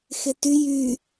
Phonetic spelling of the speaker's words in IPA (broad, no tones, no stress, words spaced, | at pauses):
xety jy